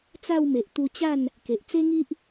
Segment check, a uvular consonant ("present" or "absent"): absent